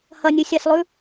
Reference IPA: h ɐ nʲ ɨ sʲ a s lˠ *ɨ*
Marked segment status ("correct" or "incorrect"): incorrect